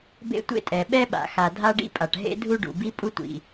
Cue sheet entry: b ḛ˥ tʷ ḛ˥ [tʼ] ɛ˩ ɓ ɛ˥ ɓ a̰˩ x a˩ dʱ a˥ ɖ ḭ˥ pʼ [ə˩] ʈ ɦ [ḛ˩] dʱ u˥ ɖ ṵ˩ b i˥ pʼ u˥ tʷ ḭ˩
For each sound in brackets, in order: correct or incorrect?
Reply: correct, incorrect: a˩, incorrect: ḛ˥

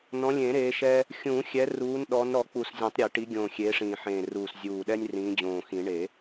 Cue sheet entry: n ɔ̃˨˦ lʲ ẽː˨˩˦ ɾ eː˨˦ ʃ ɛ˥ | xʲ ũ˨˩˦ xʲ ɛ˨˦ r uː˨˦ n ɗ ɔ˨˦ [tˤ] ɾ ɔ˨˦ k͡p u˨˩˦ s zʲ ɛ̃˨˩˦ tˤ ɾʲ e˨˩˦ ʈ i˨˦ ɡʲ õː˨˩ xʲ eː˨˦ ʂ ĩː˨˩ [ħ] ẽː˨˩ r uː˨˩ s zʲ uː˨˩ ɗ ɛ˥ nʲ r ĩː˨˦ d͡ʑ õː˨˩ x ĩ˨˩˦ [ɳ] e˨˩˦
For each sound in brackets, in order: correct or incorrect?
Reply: incorrect: n, correct, correct

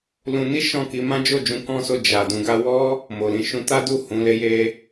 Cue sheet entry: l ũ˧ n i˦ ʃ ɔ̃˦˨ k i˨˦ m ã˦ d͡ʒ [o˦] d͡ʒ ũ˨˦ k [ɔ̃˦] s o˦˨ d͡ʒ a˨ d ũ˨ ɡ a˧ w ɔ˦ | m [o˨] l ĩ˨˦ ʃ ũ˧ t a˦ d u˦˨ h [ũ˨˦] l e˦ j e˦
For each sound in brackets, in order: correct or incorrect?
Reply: incorrect: o˦˨, correct, correct, correct

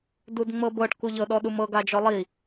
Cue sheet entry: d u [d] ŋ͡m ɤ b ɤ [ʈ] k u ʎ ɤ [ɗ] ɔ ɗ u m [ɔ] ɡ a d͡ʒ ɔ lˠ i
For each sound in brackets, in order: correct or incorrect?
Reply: correct, correct, correct, incorrect: ɤ

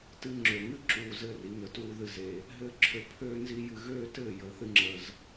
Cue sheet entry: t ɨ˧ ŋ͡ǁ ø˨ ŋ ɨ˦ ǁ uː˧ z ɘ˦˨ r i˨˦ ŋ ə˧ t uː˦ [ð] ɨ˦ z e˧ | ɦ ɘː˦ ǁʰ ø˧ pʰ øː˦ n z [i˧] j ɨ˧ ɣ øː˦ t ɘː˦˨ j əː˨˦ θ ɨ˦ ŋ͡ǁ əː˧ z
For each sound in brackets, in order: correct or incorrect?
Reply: correct, incorrect: i˦

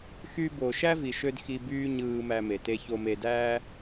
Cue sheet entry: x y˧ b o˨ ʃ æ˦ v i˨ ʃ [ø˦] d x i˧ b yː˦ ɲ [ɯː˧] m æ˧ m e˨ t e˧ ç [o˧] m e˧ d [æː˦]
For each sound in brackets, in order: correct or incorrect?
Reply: correct, correct, correct, correct

